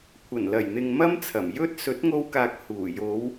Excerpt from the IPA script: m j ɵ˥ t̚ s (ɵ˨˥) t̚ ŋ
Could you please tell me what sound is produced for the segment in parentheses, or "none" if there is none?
ɵ˨˥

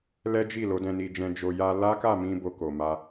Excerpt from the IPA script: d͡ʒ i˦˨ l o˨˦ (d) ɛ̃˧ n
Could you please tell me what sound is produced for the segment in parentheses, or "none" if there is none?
d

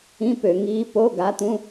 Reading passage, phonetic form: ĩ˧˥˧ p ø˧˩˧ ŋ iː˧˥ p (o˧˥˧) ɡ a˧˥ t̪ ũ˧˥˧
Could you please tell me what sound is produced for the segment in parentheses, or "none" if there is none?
o˧˥˧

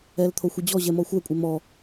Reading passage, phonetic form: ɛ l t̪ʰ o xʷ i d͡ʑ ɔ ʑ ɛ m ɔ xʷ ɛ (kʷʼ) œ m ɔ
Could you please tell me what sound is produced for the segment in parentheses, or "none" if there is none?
kʷʼ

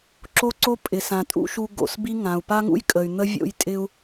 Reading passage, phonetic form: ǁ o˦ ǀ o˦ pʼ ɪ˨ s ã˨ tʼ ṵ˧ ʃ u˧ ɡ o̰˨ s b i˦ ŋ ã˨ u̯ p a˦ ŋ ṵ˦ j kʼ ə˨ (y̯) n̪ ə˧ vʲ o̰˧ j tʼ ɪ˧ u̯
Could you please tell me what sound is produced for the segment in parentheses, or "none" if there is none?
y̯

